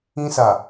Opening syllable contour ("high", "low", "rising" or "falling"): high